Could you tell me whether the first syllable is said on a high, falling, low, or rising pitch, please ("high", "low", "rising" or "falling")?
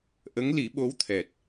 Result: rising